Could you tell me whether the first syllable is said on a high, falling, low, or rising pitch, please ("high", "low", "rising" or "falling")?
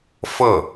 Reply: falling